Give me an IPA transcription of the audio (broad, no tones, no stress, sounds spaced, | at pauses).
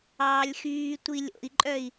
ɑː lʲ x yː tʷ i lʲ o̰ i̯ ǃʼ œ i̯